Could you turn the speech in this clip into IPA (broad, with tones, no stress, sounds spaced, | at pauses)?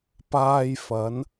p aː˧ j f ɐ˨˧ n